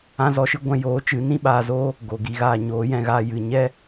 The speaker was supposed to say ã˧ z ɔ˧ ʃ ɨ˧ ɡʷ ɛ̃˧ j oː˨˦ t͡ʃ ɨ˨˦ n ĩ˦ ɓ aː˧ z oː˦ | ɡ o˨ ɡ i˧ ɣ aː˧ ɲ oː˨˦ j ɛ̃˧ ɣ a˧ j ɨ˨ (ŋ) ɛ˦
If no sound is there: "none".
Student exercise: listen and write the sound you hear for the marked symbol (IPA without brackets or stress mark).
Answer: ɲ